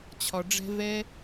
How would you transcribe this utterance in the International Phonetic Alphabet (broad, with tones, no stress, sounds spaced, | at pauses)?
t͡ɕʰ ɒ˧ ɖ͡ʐ ɛ̤˦ v ɛ˦